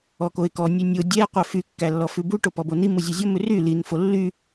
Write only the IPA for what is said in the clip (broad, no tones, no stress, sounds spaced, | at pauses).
ɔ k o ɪ̯ k ɔ nʲ ʉ nʲ o dʲ ɛ qʷ œ f y kː æ lː ɔ f ʉ b u ʈ o p ɔ b o n i m u zʲ ʉ zʲ ɔ m ʉ r y l i n f o lː y